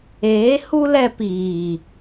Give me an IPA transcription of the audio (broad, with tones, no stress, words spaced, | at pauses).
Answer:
eː˨˦ hu˦ lɛ˧piː˨